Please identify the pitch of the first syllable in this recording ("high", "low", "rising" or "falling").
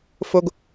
low